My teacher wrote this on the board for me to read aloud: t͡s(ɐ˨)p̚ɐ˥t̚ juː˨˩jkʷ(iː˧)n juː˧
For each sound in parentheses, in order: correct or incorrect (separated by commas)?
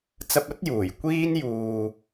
incorrect, incorrect